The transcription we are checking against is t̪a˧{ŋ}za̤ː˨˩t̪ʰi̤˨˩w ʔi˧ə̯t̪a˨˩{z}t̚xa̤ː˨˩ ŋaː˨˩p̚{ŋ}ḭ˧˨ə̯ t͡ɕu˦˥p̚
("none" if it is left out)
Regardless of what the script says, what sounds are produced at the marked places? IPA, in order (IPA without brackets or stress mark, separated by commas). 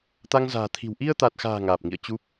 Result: ŋ, none, ŋ